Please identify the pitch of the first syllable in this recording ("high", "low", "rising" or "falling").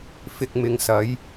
low